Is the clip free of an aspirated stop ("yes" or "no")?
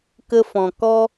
yes